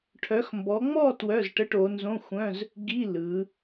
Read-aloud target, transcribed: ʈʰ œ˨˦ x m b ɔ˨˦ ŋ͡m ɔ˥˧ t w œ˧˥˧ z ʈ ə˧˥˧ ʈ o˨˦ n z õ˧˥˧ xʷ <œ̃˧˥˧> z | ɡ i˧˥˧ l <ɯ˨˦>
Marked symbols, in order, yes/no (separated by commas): yes, yes